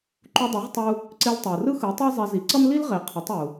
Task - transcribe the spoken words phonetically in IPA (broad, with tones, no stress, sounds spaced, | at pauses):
ǃ u˧ dˤ e˩˥ ʁ tˤ u˧ | ǀ e˧ l tˤ u˩ r ɯ˥ x ɯ˩˥ tˤ ɛ˥ zˤ ɛ˧ z i˩˥ ǀ ʌ˥ m l i˥ l ʁ e˩˥ qʰ ɯ˩˥ tˤ u˩